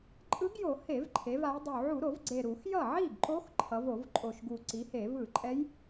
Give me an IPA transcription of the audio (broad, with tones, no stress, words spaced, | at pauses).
ǃʼɯ˧˥ɡjo˧˩˧ he˧˩˧vǃʰe˩˧va˩˧jdˤu˨˩ ʕu˧˩˧ɾo˧˩˧vɡ͡ǀe˨˩ ɾu˧˩˧xjʌ˥˩ ʕi˥˩ɡǃo˧˥x ǃʰʌ˩˧vo˧˩˧vǃʼo˨˩ʃɡu˨˩ ǀi˩˧he˧˩˧vɯ˧˩˧ǃʼɛ˧˥j